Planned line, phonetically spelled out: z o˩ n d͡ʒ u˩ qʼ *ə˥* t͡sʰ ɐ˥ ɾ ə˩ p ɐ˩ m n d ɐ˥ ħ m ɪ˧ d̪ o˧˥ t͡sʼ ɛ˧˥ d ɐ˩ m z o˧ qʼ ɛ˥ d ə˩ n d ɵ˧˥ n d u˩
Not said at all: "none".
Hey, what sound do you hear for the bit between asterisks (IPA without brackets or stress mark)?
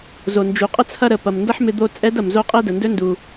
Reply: ə˥